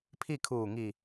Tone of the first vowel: falling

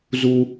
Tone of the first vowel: high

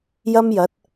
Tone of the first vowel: high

